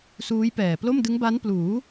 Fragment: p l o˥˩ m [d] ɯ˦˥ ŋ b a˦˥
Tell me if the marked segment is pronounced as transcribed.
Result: yes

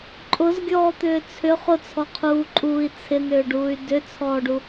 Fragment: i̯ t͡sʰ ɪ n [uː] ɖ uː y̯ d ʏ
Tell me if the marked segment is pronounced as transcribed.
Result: no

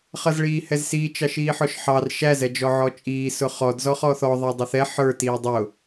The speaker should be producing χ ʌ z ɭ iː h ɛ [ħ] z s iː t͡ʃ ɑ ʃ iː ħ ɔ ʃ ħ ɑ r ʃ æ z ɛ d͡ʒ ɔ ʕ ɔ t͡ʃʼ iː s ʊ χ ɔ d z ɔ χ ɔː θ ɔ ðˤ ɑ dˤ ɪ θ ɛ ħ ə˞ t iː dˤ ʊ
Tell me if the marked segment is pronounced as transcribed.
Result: no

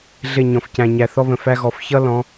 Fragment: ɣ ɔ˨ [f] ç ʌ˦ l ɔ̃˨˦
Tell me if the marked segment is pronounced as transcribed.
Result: yes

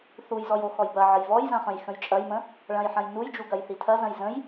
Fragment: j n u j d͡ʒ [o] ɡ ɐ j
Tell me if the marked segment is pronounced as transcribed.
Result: no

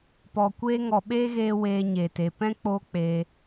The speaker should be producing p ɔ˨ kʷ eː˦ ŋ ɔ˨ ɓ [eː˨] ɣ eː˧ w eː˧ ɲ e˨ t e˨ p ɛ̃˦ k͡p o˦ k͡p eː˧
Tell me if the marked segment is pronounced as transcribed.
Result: no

